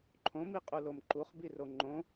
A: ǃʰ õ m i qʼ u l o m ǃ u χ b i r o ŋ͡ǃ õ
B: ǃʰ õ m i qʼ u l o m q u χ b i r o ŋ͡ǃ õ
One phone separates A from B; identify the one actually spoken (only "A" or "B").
A